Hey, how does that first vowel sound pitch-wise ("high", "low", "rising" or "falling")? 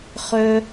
high